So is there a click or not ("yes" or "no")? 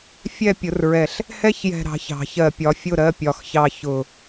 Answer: no